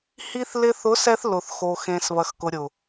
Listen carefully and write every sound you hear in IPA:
hi˧θ lɪ˧θʊ˨˦sɛ˧θ lʊ˨θxo˨ xẽ˨s βɐ˨xkʊ˨ɾʲʊ˨

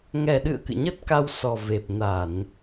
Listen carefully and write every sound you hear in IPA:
ŋɛ˨˩ɗɨ̰˧˨ə̯ kɨ̰˧˨ɲə˦˥t̚ka˧w sɔ˨˩ve˨˩p̚ na˧˩˨n

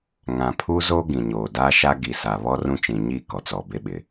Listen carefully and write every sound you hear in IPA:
ŋã˨pʰu˦zo˦ ɡĩ˨ɲoː˨ da˦ʃa˦ɡi˨ sa˨βɔ˦rũ˦t͡ʃĩ˨ ɲi˦˨ kɔ˨t͡sɔ˨be˦ɓɪ˨

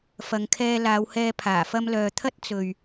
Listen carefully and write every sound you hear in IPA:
fɐ˨ŋkʰɛː˧laː˨˧whɛː˧ pʰaː˨˩ fɐ˧mlœː˨t̪ʰɐ˥t̚ t͡sɵ˨ɥ

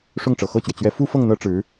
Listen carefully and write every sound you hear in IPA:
ʂʊ˥˩ŋʈ͡ʂɤ˨˩xɤ˥˩t͡ɕɥɛ˩ t͡ɕɥɛ˧˥fu˥fɤ˥˩ŋ n̪ɤ˥ʈ͡ʂɻ̩˧˥

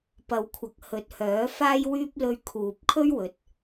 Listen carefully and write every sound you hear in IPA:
pɐ˨˧wkʷʰɐ˨k̚ hɵ˨˥t̚hœː˨˥faː˥jwyː˥p̚ lɵ˧ɥkʰuː˨p̚kʰɵ˥ɥ wɵ˨˥t̚

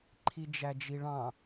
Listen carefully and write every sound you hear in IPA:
ǃʰid͡ʒæd͡ʒiɭɑ̃

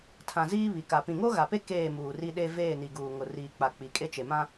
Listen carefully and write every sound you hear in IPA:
tʰã˨ziː˦ βi˨ka˨ pĩ˨ŋo˦ɣa˨pe˦ keː˦˨muː˨ri˦ɗe˦ veː˦˨ni˨ɡuː˨ŋʊ˨ riː˨k͡pa˨ k͡pi˨kʼe˦t͡ʃe˨ mã˦

